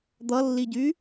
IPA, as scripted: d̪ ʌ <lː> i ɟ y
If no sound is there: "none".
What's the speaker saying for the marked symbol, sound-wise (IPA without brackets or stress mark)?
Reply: lː